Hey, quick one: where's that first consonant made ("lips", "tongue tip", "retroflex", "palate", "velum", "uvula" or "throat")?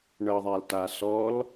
retroflex